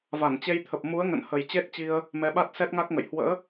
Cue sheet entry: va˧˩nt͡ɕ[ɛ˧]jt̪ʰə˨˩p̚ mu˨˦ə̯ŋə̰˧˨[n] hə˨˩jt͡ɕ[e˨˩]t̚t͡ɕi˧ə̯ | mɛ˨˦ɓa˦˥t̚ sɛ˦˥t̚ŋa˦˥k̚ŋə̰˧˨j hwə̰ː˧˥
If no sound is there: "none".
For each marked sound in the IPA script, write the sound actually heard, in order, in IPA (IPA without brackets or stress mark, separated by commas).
e˧, n, e˦˥